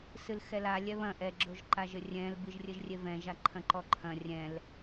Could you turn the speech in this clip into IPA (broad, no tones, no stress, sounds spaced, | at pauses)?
s ɨ l x ɛ l a lʲ ɛ β ɐ̃ ʔ ɛ ɡ͡ǁ o ʒ ǃ a ʒ ɘ rʲ ɛ̃ l b ɨ ʒ rʲ ɘ ʒ rʲ e v ɛ̃ ʒ a ǃʰ ɐ̃ ǃ ɔ ǃʰ ɐ̃ rʲ ɛ̃ l